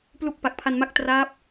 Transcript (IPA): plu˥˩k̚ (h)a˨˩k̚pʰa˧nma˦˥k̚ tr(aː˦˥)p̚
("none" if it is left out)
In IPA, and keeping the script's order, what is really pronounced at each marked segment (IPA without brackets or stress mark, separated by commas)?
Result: p, aː˦˥